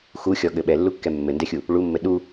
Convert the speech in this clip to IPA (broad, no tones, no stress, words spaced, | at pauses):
xuxʲɔɠɘ ɓɛlːukːɛ mːɘndɛxʲu | ɭumːɘ ɗu